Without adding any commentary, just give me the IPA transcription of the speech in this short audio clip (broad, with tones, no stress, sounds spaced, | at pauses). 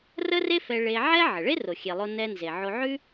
r ə˥ r e˥ f ɛ˧ ɭ e˧ ʕ ɛ˥ ʕ ə˩ ɭ e˥ r o˩ xʲ e˩ lˠ o˧ n ɛ˧ n z e˩ ʕ o˧ ʕ ʉ˥